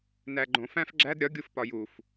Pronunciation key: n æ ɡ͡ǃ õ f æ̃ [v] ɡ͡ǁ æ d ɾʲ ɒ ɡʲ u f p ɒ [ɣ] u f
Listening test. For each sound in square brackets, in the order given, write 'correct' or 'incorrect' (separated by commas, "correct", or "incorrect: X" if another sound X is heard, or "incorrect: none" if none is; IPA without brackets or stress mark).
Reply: incorrect: f, incorrect: j